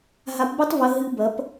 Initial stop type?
plain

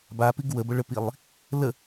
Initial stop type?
plain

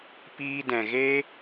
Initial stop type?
plain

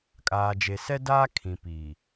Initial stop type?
ejective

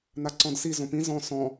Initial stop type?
click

